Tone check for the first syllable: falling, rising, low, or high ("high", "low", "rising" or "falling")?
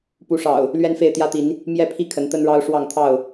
rising